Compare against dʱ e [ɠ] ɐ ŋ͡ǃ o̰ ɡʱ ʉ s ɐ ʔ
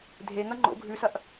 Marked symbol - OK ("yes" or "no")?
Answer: no